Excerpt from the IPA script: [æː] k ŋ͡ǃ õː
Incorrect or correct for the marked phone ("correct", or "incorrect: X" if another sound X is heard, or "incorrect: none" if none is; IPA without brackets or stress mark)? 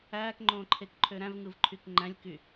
correct